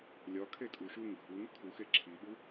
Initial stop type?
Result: aspirated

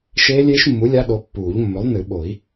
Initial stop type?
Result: implosive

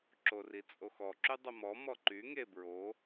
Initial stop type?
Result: click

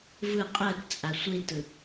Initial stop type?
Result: ejective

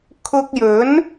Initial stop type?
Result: aspirated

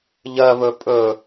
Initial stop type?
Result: ejective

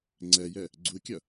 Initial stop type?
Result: click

